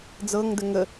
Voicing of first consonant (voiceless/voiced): voiced